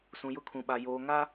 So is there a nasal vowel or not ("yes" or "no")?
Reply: yes